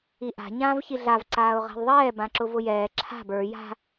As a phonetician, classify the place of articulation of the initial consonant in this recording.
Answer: glottal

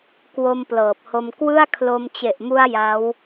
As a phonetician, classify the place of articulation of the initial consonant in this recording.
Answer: velar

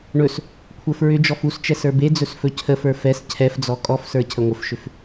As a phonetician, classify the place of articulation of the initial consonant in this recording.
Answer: retroflex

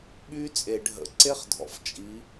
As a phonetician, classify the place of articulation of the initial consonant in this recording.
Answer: labial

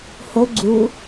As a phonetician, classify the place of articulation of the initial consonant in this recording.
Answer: glottal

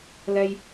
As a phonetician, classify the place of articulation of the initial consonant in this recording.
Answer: alveolar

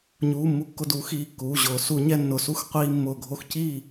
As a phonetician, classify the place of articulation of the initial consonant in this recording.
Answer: palatal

